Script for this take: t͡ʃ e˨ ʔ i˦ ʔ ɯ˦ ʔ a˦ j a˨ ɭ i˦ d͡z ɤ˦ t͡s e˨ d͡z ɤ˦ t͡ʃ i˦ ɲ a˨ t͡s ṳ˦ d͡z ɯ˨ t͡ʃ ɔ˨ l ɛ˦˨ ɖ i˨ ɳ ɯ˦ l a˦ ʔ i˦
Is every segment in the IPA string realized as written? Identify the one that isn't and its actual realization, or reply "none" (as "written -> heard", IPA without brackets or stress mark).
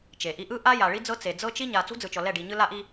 ɳ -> ɲ